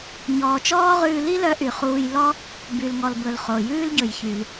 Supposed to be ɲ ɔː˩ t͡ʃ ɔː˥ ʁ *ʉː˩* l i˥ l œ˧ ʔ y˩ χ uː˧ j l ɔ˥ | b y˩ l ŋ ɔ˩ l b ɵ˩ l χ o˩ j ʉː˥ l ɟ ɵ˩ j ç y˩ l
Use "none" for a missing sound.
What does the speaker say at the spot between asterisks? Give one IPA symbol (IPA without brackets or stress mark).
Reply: ʉː˧